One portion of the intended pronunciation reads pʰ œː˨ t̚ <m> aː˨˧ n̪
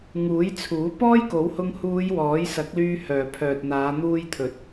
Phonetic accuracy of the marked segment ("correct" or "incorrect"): incorrect